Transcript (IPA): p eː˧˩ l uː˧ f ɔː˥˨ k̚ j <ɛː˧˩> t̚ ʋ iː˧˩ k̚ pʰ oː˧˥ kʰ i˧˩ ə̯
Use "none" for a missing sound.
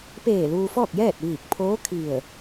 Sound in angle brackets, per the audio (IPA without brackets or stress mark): ɛː˥˨